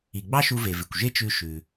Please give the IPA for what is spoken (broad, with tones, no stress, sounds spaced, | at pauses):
i˩ ɡ͡b ɑ˥ ʃ u˧ v e˩ v ɪ˩ kʷ ʒ e˥ t͡ʃ ʉ˧ ʃ ʉ˩